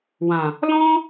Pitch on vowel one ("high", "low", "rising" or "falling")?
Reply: low